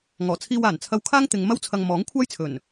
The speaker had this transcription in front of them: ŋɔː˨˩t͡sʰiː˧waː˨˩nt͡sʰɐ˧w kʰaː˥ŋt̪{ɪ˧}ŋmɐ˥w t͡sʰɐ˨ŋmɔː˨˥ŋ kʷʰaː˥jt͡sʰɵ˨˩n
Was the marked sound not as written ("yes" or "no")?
yes